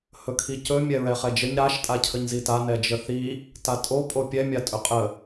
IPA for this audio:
hɵkʰicɵ mʲɛɹɛχɛd͡ʒəɲ ɾaʃ tʼacʰəɲzita nɛd͡ʒəθi | tatʼo pʼopʲɛ mʲatʼɵqʼə

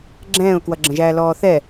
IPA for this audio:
ɡ͡ǁɛ̃ːʊ̯kwʌɡ͡ǁə̃ʒæː lɔːθɛ

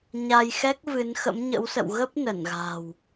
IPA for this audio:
ɲa˧jxɛ˦˥k̚ vɨ˨˦n xə̰˧˥mɲə̰˧˥wsə̰˧˨w ɣə˦˥p̚ nə˧˩nɣa̤˨˩w

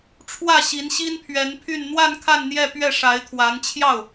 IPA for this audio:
ʈ͡ʂʰwä˥˩ɕi˧˥n ɕi˥npʰɥɛ˧˥npʰy˥˧n n̪wa˥˧n kʰa˥˧nn̪jɛ˥˧pɥɛ˥˩ ʂa˧˥ɪ̯ t̪ʰwa˧˥nt͡ɕʰjɑ˥˩ʊ̯

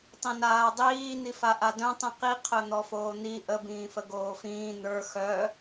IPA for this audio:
tˤĩnaːdˤiː n̪ifaʔadœ̃ tˤĩqi qʰœn̪ɔfoːn̪i ʔə bĩːfəɡoːfĩː n̪ə˞ xœ

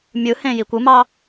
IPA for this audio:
mʲɯhẽ jikʷɯmɑ

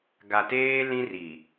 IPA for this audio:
ɡa˨teː˦ lĩ˦ri˨

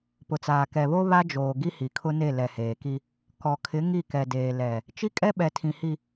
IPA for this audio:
pʊ˨t͡saː˨ kɛ˨βo˦ βa˦d͡ʒoː˨ ɡi˦hi˨kʰʊ˦ne˦˨ lɛ˨heː˨ki˦ | kɔ˨kʰɪ˨˦ ŋi˦˨kɛ˨deː˨ lɛ˨ | t͡ʃi˦kʼɛ˦ɓɛ˨ tʰĩ˨hi˨

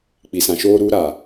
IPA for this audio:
k͡pi˨sã˨ʃoː˦ɾuː˦ ɾa˨

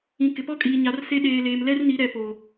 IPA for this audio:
ĩ˨ kɪ˨pɔ˦kʼiː˨ ɲa˨˦rse˦ ɗeː˨ leː˨mlɛ˦rni˨˦ ɾɛ˨poː˨

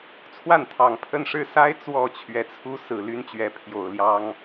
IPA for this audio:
t͡sʰwa˥˩nt̪ʰɑ˨˩ŋ pʰə˥˧n ʂɻ̩˥˩sa˥ɪ̯ t͡swɔ˨˩ t͡ɕʰɥɛ˧˥t͡sʰu˥ sɹ̩˨˩ly˥nt͡ɕɥɛ˧˥ pʰjo˨˩ʊ̯ljɑ˥ŋ

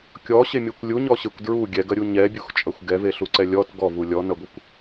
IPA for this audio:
kʲɔɕemʲɐkʷ lʲuɲɔɕekʷ dɹu ɡʲɛɡɐɾʲu ɲɛbʲuxt͡ʃʼɐxʷ ɡɛveɬuǀɛ lʲɔt ɡɔvu lʲɔnɐɡʷɐkʷ

